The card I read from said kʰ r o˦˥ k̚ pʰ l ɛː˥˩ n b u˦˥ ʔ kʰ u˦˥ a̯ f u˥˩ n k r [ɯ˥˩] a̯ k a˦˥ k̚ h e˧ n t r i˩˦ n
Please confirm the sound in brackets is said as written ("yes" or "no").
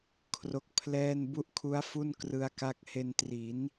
no